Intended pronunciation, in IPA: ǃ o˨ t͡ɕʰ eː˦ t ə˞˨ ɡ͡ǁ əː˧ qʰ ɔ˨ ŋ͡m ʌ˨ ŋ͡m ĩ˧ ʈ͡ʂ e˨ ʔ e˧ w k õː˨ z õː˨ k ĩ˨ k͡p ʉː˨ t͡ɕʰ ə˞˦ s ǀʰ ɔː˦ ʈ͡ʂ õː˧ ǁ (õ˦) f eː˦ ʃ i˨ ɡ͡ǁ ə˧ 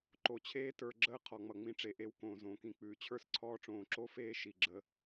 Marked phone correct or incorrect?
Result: incorrect